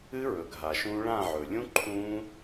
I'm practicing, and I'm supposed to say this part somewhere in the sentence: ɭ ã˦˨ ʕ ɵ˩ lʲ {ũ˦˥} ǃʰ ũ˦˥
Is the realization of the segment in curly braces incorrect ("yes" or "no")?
no